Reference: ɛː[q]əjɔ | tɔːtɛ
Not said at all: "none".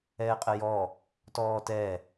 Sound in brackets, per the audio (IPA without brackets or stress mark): qʼ